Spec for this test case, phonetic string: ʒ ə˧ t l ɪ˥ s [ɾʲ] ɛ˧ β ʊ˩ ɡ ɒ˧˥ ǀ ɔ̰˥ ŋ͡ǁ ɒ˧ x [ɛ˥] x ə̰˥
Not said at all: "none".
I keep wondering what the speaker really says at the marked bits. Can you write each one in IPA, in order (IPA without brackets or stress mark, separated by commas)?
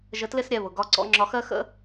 ɾʲ, ɜ˥